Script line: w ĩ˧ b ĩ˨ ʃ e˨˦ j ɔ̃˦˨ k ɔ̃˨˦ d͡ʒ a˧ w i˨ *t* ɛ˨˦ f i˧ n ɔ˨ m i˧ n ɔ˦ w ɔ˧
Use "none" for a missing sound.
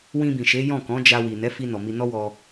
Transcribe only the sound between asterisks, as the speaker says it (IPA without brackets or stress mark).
n